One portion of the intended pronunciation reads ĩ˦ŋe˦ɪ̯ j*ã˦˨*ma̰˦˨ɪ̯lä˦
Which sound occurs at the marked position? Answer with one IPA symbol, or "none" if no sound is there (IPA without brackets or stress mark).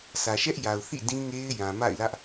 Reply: ã˨